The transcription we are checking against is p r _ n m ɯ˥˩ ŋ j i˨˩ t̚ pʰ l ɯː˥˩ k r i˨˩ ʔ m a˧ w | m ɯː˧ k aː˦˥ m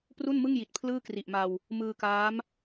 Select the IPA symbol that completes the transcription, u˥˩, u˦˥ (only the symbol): u˥˩